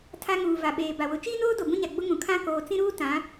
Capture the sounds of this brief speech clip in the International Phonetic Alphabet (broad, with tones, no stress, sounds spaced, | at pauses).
tʰ a˦ ŋ uː˨ v a˨ ɓ eː˨ b a˨ w ʊ˨˦ t͡ʃ iː˦ n oː˦ d o˨ b ũ˦ ɲ a˨ ɡ͡b ʊ˦ ŋ ũ˨ kʰ ã˦ k oː˨ t͡s ĩ˦ ɾ uː˦ t ã˨˦